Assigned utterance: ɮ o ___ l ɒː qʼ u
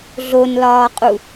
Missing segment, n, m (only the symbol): n